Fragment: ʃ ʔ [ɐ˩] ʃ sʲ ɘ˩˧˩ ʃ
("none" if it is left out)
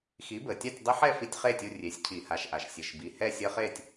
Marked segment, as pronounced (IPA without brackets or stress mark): a˩